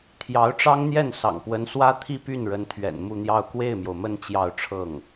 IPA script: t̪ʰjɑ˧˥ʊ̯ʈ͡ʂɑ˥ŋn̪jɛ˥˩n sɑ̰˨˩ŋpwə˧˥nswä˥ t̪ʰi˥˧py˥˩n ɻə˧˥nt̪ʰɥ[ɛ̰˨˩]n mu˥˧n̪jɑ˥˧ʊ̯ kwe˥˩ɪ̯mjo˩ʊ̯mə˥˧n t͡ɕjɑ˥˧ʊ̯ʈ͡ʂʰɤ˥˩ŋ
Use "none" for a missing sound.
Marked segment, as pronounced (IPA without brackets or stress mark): ɛ̰˨˩